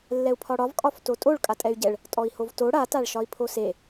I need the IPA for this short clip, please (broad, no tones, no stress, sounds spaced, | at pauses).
lː ɛ u̯ pʰ ɒ ɽ ɒ v kʼ ɒ f t o tʼ o ɭ kʼ a tʼ ɛ y̯ ɟ ɛ ɭ | tʼ ɔ i̯ h o v t o ɽ a t a ɭ ʃ ɒ i̯ pʰ o s e